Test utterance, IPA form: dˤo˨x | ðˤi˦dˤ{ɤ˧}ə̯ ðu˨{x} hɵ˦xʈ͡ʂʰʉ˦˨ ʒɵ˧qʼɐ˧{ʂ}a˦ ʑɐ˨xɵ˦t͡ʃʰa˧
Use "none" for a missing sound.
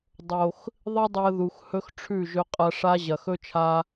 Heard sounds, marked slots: ɵ˧, x, ʂ

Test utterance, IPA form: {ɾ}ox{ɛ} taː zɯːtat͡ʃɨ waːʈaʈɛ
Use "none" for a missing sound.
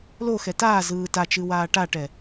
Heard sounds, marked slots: l, ɛ

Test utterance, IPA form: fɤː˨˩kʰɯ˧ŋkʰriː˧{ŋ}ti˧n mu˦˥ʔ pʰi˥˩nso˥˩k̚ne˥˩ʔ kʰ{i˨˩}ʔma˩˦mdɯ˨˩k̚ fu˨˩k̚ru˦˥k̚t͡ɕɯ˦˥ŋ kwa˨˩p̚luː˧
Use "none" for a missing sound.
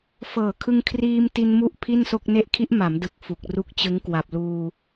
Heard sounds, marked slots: m, i˦˥

